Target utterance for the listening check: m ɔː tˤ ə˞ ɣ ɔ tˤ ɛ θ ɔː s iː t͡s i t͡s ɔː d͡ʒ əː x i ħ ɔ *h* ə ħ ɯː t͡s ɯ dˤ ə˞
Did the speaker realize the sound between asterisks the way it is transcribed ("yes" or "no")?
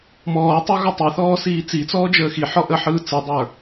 no